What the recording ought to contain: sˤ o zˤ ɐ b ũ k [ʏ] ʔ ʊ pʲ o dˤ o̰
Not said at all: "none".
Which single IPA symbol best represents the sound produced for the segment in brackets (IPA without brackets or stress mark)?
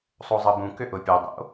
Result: ʏ